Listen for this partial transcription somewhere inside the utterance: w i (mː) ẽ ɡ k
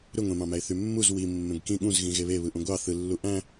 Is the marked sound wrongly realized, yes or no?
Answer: no